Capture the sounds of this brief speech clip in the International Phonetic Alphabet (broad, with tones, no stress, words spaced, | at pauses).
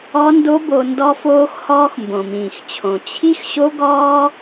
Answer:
ɔ˦ndo˦bo˧ ndɔ˧foː˧xhɔː˧x mbõ˨mĩː˨xt͡ɕʰõ˨ t͡ɕʰi˦xɕo˦ɡɔː˦